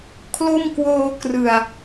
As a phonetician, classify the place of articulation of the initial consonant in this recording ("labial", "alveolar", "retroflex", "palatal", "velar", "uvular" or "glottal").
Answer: velar